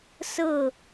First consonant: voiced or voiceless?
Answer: voiceless